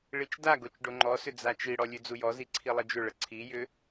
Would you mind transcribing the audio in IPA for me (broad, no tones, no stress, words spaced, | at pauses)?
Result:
ɭit͡ʃdaɡot͡ʃ ɖoŋ͡ǃɔsʏ d͡zat͡ʃiɽɔ lʲʉd͡zujɔzi ǀʰilˠəd͡ʒʏɭə ǀʰijʏ